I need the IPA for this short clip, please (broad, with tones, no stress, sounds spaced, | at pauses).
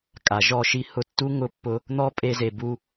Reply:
kʼ a˨ ʒ ɔ˦˨ ʃ i˦ h ʊ˧ tː u˦ ŋ ʊ˧ pː ʊ˧ | n̪ ɔ˦ pʼ e˧ z e˨ b u˧